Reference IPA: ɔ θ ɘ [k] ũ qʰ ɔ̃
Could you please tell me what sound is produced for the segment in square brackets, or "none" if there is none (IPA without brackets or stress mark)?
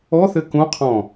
k